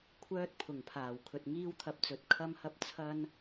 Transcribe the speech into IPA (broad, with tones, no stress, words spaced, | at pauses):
kʷʰœː˧t̚pʰʊ˨˩ŋpʰaː˨˩w kʰɵ˨t̚ ŋiː˥wt̪ʰɐ˧p̚t͡sɵ˨˥t̚ kʰɐ˥mhɐ˥p̚ t͡sʰɐ˥n